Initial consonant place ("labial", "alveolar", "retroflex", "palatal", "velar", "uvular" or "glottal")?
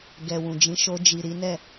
velar